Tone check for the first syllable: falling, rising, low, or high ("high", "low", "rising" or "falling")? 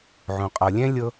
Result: low